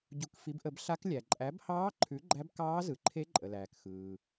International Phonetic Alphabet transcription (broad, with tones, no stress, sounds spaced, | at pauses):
ɟ u˨˩˦ k f i˩˥ b ʔ ə˨˩˦ b ɬ a˧˥ k lʲ æ˩ ǃʼ æ˩˥ b h ɑː˧˥ ǃʰ ʉ˩˥ ɡ͡ǃ æ˧˥ b k ɑː˧˥ z ɯ˩ ǃʰ e˧˥ ǃʼ ə˩ l æː˩ k x ɯː˩